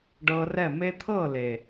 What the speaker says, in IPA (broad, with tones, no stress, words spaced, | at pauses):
ɖɤ˧rɛ˦˨ me˧t̪ʰɤ˦˨le˨